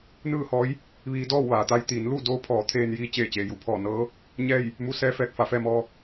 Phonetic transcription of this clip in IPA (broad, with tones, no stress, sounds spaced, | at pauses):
n ɯː˥˨ h ɔː˧˥ j | ʋ iː˧ d ɔː˥˨ w ʋ aː˩ t̪ a˧ j t̪ iː˩˧ n l u˥˨ d oː˧˥ pʰ ɔː˩˧ t̪ʰ eː˧ n j iː˧ t͡ɕ eː˧˩ t͡ɕ eː˩ j u˧˩ pʰ ɔː˧˩ n ɤː˧˥ | ɲ ɛː˥˨ j | m u˧˥ s ɛː˧˥ f ɛː˧ k̚ f a˩˧ f ɛː˧ m ɔː˧